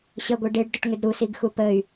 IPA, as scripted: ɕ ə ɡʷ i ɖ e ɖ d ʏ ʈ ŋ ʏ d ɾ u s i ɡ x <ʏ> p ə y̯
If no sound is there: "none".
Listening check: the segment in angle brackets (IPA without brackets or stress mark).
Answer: u